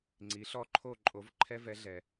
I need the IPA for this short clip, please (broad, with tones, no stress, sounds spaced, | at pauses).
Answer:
ŋ͡ǀ i˨˦ ɬ ɔ˥˧ ǃʰ o˥˧ ǃʼ o˨˦ v ǃʰ ɛ˦˥ v ɛ˨˦ ɮ ɛ˨